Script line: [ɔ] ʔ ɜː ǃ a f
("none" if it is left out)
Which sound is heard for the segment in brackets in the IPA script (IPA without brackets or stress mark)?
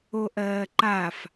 o